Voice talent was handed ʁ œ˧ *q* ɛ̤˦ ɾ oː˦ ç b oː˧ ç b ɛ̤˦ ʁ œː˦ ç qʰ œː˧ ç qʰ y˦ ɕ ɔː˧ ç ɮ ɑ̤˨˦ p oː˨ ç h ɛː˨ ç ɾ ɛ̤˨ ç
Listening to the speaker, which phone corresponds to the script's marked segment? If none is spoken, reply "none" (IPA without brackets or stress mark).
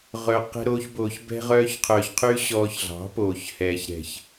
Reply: q